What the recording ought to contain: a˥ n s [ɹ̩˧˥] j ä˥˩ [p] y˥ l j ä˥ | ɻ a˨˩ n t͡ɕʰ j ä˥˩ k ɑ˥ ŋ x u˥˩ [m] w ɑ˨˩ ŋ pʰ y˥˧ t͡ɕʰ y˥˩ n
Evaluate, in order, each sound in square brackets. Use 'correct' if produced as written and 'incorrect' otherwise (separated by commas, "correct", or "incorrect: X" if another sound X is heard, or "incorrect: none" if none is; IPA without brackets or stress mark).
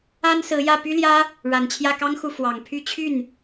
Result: correct, correct, incorrect: f